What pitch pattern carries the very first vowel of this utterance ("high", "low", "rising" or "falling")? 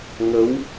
rising